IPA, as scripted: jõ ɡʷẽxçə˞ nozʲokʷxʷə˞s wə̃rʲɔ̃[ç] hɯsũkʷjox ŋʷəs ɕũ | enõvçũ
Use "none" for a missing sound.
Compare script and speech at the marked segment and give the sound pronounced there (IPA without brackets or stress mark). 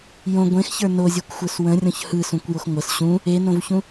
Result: ç